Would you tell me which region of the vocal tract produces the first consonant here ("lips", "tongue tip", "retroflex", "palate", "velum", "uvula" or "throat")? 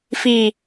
lips